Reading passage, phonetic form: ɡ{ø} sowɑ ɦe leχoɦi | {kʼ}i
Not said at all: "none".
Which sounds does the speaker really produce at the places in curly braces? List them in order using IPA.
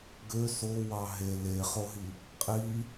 ø, qʼ

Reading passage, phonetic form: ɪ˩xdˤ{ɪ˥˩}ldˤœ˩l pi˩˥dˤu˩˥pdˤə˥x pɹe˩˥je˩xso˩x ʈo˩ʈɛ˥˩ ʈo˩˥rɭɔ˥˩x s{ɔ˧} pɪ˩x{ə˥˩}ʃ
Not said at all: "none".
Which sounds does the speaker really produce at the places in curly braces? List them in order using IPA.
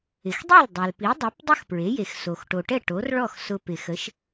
i˥˩, ʊ˧, ə˩˥

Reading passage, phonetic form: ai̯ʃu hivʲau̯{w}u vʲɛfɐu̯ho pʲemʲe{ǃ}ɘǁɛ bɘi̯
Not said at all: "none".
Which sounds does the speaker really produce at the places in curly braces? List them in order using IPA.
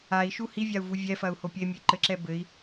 v, ǃ

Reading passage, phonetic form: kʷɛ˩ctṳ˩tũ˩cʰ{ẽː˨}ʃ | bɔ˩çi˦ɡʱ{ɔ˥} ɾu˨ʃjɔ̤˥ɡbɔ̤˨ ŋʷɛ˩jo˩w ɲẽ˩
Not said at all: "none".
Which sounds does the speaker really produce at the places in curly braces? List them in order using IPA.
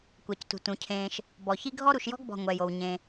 ẽː˨, ɔ˥

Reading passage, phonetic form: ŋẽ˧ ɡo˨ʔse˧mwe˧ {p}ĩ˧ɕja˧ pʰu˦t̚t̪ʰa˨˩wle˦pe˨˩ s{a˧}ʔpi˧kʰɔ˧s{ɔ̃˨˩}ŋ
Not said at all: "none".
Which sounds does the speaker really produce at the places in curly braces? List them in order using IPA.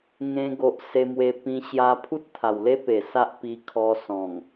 p, a˦, ɔ̃˨˩

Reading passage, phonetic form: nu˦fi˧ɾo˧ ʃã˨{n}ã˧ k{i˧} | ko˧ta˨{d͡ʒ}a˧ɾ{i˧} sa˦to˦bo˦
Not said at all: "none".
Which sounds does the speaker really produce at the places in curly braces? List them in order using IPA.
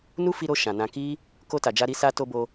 n, i˦, d͡ʒ, i˧

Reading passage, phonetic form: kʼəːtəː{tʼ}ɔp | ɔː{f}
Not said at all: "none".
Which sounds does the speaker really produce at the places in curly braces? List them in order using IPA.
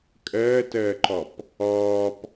ǃ, p

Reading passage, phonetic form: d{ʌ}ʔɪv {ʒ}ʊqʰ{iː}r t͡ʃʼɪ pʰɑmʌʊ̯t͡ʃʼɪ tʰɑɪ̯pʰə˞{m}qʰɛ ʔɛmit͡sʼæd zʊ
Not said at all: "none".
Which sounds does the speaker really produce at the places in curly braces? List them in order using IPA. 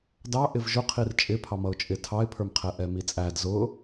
ɑ, ʒ, i, m

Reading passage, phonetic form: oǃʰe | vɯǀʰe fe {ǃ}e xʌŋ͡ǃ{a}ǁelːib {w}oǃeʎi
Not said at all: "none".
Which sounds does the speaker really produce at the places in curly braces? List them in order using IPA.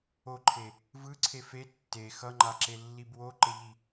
tː, a, w

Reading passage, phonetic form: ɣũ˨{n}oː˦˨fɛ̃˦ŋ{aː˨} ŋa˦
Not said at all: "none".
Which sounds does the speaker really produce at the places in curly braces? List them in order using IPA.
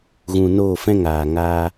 n, aː˨

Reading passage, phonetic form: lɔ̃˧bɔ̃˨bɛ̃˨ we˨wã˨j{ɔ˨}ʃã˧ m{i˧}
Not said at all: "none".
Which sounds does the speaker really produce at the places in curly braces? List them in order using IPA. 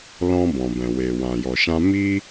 ɔ˨, i˦

